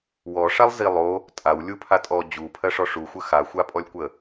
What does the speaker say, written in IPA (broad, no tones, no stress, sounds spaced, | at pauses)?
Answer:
w ɔ ʂ a lˠ z i lˠ o | tʼ a w lʲ u pʰ a tʼ ɔ d͡ʑ u pʰ ɜ ʂ ɔ ʂ u xʷ ə x a xʷ a pʼ ɔ lʲ kʷ ə